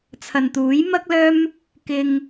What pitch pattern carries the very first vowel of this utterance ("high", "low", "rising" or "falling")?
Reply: low